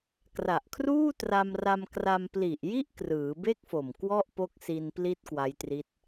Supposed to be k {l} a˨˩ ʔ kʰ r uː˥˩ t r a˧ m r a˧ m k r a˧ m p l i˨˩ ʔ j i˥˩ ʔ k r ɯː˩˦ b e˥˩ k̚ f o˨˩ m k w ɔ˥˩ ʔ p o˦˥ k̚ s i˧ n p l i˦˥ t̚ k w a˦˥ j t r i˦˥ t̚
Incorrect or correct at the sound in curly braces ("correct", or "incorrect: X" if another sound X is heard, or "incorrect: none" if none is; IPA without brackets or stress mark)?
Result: incorrect: r